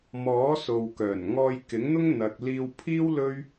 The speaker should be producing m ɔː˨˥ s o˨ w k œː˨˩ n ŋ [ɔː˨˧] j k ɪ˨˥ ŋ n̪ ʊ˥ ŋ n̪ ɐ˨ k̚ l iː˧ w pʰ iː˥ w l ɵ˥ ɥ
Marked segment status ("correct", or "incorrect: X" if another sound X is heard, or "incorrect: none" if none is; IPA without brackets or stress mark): incorrect: ɔː˧